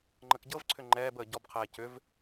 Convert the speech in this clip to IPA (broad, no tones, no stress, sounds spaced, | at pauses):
ŋ͡ǃ ə k ɟ ɤ v ǀʰ ʏ ŋ͡ǃ ɛː b əː ɟ ɔ b qʰ ɛː c ʏ v